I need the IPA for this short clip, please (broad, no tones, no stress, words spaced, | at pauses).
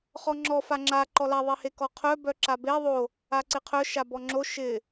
χɔŋ͡ǁɔ faŋ͡ǁa ǃɔla ðˤihekɔqʰœ bœǁabe ðˤo | aǀɪqʰœ ʃabɔŋ͡ǁo ʃɪ